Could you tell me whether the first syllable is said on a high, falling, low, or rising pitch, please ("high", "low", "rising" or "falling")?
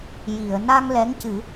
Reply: low